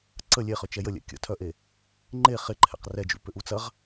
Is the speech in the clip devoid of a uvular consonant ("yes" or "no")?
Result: no